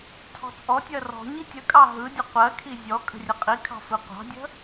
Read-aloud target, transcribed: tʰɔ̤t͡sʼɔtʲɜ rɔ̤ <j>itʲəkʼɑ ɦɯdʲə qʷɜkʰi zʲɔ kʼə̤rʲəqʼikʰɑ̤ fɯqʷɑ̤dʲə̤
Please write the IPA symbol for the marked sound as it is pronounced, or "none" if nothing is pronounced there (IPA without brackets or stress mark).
ɲ